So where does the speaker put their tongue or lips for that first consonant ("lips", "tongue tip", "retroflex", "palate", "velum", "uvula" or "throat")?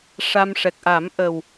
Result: retroflex